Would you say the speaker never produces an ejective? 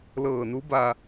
yes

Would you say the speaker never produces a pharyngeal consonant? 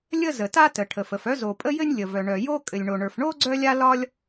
yes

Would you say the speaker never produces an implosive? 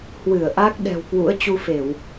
no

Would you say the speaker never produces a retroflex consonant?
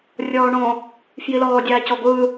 no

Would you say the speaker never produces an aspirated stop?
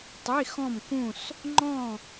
yes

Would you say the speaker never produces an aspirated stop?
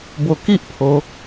no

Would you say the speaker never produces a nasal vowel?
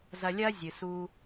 yes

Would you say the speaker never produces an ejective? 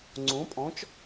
no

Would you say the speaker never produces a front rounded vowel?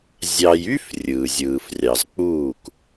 no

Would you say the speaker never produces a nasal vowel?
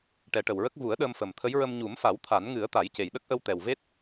yes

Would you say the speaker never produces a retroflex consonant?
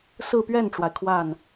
no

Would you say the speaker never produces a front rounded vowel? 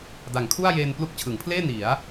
yes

